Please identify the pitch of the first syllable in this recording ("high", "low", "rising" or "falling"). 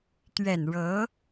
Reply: low